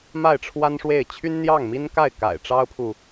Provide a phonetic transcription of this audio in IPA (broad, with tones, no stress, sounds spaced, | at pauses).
m a˥˩ ɪ̯ ʈ͡ʂʰ w a˥ n ʂ w e˥˩ ɪ̯ t͡ɕʰ y˥ n n̪ j ɑ˥˩ ŋ m i˥ n k a˥˩ ɪ̯ k a̰˨˩ ɪ̯ ʈ͡ʂ ɑ˥ ʊ̯ pʰ u˨